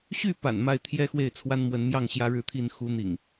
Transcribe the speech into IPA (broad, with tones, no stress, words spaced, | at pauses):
ɕy˥˨pa̰˨˩n ma˥˨ɪ̯t̪ʰjɛ˦xwe˥˨ɪ̯ t͡sʰwa˦nmwə˨˦nmjɑ˥˨ŋ ɕjä˦ɻɻ̩˦t̪ʰi˥˨n xu˨˦n̪ḭ˨˩ŋ